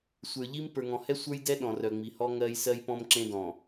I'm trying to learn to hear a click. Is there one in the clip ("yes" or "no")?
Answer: yes